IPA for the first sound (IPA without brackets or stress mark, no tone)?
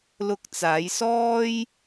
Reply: l